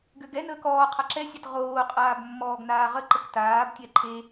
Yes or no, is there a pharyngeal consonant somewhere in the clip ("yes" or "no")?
no